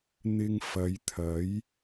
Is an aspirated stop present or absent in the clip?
present